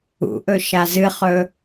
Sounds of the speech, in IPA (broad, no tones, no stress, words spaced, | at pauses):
ṵʔɵ ʃazɨχɵ